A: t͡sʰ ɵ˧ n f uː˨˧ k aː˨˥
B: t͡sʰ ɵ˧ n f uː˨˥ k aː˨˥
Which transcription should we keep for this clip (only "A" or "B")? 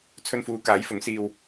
A